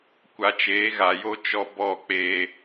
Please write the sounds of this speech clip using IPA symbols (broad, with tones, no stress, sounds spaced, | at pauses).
kʷ a˨ t͡ʃ eː˨˦ ɣ a˨ j o˦ t͡ʃ ɔ˦ b ɔ˦˨ k͡p eː˦